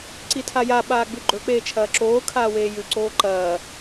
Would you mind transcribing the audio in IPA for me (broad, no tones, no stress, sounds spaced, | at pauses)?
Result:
ǀ i tʰ a j a ɓ aː ɡ͡b ʉ ɡ͡ǃ ɵ k͡p eː t͡ʃʰ ɐː ǁ oː kʰ aː w eː j ʉ ǀ oː ǃ ɐː